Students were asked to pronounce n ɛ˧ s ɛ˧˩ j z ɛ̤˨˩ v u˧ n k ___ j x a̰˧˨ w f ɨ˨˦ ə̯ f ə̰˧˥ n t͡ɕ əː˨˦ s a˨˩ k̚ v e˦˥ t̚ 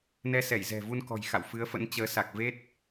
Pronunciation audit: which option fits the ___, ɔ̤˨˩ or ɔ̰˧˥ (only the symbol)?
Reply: ɔ̤˨˩